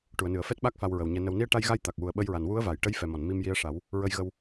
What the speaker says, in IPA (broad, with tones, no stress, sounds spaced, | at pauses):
ʈ u˨˩˨ ə̯ n ɨ˨˩˨ ə̯ f ɛ˦˥ t̚ ɓ a˦˥ k̚ f a˧ w ɹ ə˨˩ w ɲ ɛ˧ n ə˨˩ w n i˧ ə̯ ʈ a˧ j ɣ a˧ j t̪ a˨˩ k̚ w u˨˩ ə̯ ɓ ə˧ j ɹ a˨˩ n w u˧˥ ə̯ v a˨˩˨ j ʈ ə˧˥ j f ɛ˨˩ m ɔ˨˩˨ n m i˧ m j i˧˥ ə̯ ʂ a˨˩˦ w | ɹ ə˧ j ɣ ə˧ w